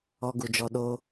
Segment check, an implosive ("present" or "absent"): present